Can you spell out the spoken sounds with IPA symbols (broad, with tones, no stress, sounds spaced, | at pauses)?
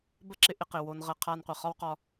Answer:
b ə˦ ǁ ɪ˧ ʔ ɪ˧ q ɪ˨ w o˧ n ʁ ə˧ qʰ a˧ n qʷ ɪ˨ χ ɒ˦ w q ɒ˧